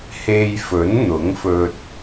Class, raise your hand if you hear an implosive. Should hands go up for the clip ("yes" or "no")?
no